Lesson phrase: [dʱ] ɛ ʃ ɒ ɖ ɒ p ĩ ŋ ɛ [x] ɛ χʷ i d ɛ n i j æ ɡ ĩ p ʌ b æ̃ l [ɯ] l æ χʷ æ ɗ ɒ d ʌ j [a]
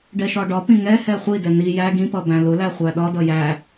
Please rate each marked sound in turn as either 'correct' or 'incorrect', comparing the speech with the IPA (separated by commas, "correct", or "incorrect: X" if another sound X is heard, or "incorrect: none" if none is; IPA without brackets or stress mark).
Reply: incorrect: ɖ, incorrect: h, incorrect: ʊ, incorrect: æ